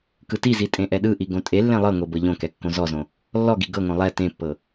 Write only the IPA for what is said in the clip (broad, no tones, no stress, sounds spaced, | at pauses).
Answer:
k ɯ t i z i tʼ ẽ ʔ ɛ ɗ ɯ ʔ i ɡ õ tʼ e lː ẽ lˠ ɤ ŋ o b ɤ ʎ õ k ɛ kː õ z ɔ z õ | lː ɔ ɡ i ɡ ɤ ŋ õ lˠ ɛ t ẽ pː ɤ